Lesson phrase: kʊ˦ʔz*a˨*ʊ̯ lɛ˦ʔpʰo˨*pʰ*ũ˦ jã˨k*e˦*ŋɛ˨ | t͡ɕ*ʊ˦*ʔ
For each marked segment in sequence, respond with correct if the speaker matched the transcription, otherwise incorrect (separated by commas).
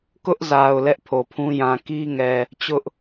correct, correct, incorrect, correct